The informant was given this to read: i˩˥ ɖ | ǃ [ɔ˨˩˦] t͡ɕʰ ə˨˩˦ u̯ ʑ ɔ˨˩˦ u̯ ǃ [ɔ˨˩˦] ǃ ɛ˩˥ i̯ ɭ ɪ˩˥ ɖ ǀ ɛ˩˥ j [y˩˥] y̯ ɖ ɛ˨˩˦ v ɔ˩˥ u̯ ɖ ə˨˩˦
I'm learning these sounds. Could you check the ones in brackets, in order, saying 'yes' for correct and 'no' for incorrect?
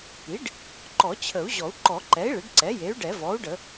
yes, yes, no

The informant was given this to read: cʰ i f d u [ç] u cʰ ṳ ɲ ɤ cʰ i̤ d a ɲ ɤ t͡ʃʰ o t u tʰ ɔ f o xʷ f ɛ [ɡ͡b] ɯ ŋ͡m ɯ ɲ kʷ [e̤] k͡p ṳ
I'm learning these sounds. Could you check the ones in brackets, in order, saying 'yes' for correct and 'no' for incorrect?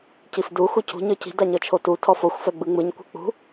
no, yes, yes

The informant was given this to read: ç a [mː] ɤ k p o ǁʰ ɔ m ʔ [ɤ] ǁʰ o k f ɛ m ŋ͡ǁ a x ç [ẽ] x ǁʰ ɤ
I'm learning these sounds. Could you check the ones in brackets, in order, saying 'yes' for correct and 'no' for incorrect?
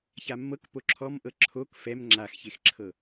yes, yes, no

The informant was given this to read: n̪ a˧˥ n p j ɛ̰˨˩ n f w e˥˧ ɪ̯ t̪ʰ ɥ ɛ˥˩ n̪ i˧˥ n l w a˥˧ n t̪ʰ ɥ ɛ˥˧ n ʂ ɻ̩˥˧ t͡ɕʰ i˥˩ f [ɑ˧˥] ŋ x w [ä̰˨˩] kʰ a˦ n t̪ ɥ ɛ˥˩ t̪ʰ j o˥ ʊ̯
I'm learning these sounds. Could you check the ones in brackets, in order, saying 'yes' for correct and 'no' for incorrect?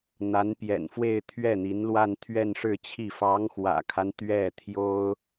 yes, yes

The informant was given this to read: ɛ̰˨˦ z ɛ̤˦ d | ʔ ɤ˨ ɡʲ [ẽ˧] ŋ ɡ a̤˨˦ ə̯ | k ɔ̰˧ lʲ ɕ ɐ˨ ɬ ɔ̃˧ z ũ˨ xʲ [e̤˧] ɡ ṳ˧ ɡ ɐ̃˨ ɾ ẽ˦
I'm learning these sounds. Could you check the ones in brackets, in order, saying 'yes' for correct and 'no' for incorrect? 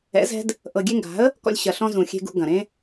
no, yes

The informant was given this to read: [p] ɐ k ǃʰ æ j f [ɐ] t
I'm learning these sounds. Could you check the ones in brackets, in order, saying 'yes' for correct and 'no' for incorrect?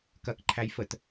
no, no

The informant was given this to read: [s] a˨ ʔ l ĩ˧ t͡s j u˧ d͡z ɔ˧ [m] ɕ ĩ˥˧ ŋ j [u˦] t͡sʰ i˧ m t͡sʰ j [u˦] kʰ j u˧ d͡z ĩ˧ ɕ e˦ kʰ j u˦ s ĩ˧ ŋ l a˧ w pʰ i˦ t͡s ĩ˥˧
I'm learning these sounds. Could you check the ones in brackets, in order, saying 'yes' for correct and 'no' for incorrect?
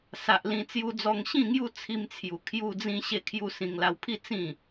yes, no, yes, no

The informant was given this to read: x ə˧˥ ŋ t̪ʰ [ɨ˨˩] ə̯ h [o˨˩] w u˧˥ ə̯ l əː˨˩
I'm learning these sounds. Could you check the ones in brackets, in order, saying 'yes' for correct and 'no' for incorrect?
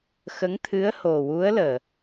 no, yes

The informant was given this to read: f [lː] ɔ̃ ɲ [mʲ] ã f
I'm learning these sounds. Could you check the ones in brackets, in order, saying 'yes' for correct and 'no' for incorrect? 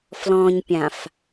no, no

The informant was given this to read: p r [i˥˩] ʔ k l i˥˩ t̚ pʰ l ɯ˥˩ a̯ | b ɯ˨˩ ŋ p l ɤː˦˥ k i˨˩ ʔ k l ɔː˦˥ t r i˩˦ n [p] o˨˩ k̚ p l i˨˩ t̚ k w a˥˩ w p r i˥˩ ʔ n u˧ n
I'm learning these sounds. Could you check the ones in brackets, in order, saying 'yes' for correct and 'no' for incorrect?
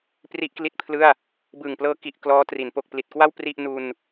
yes, yes

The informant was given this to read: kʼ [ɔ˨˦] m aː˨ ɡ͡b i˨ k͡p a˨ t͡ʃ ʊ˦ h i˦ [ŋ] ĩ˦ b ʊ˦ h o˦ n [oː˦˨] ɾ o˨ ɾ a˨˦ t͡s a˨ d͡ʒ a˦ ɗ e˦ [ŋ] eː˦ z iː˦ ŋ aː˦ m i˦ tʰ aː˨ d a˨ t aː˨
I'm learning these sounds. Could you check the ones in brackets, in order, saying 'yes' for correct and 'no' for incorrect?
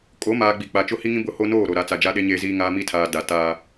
no, yes, yes, no

